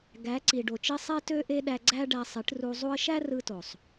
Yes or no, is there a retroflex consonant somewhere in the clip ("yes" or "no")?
yes